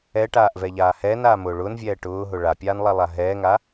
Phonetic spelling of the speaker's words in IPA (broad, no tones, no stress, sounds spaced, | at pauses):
ɛ ʈ aː ʔ v ɛ ʎ aː h ɛː n aː m ʊː ɭ ʊː n vʲ ɛː ʈ ʊː ɦ ʊ ɭ a pʲ aː n lˠ a lˠ a ɦ ɛː ŋ a